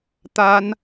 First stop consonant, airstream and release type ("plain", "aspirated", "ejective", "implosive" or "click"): plain